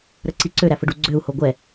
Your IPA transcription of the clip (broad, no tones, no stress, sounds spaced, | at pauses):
ɾ ə ǀ i ǀ ø ɾ æ f ə ɖ u ɡ͡ǀ ø u̯ h o ɡʷ ɛ